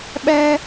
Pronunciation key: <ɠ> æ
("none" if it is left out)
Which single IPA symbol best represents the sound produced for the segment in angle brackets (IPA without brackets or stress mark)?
ɓ